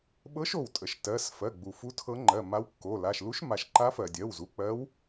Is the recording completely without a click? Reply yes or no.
no